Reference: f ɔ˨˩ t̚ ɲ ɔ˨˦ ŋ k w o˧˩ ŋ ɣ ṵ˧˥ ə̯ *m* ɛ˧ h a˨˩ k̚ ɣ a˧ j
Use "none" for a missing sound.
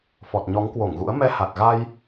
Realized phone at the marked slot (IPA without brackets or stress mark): m